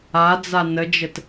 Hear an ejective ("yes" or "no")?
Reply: no